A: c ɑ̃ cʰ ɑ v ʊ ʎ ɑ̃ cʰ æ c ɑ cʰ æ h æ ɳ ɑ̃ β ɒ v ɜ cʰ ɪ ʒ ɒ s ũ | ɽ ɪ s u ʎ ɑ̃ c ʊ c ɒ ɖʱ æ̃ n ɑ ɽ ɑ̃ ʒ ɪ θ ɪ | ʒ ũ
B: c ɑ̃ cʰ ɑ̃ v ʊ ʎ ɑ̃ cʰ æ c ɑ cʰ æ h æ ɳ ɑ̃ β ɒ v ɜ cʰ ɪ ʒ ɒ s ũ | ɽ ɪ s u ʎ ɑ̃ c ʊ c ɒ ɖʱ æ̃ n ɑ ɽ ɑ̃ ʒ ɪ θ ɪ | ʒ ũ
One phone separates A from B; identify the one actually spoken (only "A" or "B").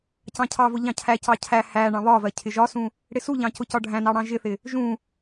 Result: A